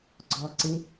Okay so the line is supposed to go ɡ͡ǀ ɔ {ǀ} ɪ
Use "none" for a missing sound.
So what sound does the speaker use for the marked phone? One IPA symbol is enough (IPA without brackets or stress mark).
ǀ